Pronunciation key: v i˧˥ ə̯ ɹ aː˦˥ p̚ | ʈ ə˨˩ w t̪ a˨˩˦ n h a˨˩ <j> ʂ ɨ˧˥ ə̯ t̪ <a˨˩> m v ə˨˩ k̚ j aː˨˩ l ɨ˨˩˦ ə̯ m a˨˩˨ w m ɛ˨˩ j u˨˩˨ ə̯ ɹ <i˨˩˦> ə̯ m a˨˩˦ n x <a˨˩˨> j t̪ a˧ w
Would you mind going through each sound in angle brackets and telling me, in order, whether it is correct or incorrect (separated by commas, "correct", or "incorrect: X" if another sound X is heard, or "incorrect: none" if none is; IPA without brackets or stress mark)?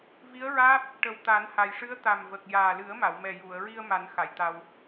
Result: correct, correct, incorrect: i˧, correct